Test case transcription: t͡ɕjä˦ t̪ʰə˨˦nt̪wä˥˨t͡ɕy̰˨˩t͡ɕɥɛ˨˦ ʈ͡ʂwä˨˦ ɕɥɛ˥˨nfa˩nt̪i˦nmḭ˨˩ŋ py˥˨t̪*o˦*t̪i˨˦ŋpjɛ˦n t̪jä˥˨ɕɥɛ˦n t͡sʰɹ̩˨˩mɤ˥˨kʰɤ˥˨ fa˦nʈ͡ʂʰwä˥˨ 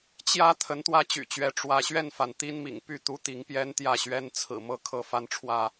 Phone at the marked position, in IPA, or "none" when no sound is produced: u˦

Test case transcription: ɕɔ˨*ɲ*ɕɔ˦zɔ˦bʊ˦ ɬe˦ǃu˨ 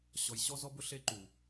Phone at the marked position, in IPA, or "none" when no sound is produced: j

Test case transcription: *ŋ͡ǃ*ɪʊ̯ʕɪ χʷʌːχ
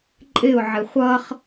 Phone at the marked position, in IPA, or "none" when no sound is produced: ǃʼ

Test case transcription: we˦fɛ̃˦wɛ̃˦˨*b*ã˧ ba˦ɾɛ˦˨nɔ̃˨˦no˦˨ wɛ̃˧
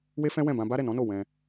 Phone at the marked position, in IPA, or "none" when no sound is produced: b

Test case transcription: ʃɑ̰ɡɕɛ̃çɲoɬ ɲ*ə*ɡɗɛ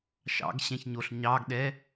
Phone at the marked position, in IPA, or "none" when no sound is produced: ɑ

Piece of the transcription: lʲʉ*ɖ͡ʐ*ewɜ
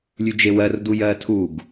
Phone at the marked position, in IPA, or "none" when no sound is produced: d͡ʒ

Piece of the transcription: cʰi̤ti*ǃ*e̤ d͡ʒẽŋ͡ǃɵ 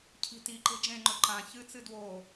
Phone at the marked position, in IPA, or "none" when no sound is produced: ǃ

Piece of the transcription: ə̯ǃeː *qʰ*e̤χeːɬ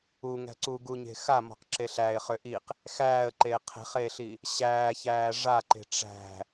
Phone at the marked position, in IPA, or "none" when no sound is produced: qʰ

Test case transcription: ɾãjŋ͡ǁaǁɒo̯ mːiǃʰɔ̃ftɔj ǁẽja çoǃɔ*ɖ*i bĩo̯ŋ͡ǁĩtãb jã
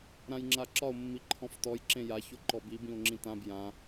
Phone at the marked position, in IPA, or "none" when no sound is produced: b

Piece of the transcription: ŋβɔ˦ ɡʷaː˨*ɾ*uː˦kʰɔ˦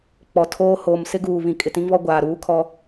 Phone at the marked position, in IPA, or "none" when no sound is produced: ɾ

